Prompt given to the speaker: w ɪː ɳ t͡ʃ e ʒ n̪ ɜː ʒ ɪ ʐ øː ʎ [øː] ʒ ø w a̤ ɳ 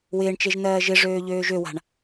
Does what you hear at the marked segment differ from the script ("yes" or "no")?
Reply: no